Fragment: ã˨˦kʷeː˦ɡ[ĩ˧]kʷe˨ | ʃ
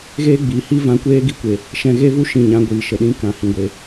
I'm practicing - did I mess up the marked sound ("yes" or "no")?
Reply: yes